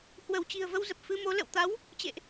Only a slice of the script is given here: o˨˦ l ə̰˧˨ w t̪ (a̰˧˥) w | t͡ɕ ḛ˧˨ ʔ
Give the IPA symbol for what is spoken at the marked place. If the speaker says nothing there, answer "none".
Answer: a˨˦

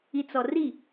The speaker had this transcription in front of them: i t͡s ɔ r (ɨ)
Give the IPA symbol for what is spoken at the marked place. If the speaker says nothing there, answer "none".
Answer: i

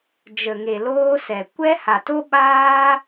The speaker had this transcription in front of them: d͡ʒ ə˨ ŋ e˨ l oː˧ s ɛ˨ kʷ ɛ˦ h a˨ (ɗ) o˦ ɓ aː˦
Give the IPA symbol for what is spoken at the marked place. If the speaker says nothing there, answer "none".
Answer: t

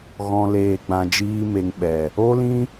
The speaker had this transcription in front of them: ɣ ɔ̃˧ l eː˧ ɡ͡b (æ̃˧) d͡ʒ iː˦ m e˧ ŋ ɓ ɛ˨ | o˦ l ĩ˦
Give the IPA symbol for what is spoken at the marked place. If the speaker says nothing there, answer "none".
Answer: ã˧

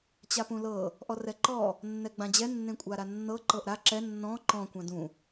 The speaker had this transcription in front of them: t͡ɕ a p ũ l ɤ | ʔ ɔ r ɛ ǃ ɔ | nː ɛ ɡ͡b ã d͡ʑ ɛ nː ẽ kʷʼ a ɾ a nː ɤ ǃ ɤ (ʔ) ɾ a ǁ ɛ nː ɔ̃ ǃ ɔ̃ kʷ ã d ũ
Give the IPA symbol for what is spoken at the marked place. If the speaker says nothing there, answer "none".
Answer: ʔ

